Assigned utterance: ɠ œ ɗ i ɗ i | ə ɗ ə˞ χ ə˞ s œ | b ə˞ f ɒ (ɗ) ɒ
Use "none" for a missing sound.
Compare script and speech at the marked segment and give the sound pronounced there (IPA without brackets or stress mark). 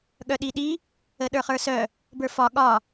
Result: ɠ